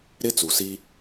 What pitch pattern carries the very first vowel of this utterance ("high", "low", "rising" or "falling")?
high